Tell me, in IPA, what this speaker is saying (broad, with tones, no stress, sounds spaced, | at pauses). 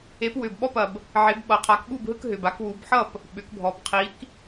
e˨˦ p w ʏ˨ b ɓ ɔ˦ p ɐ˨ b | ʕ e˨˦ b ɓ ʌ˨ qʰ a˨˦ k ɓ u˥˨ b ɦ ɯ˦ k ɦ ʏ˨ b a˦ k w u˨˦ b ħ ʌ˥˨ p | ɓ ʏ˨˩˦ k bʱ ɔ˨ b qʰ i˨˦ k